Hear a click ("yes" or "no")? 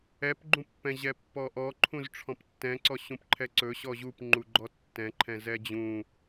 yes